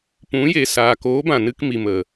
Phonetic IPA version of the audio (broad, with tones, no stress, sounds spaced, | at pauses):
p ũ˨˦ j e˨ s aː˨ k oː˨˦ b ã˨ n ɨ˧ k m i˨ m ə˨